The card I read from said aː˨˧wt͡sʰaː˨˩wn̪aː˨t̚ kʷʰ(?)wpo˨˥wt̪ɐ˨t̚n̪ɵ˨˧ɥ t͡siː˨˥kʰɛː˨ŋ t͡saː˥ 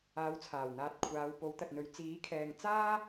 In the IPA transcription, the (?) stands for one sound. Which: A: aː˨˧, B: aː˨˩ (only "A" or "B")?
A